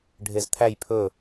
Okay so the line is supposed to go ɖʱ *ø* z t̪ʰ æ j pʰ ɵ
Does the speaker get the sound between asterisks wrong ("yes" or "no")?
yes